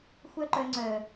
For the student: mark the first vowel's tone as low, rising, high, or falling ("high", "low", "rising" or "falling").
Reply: high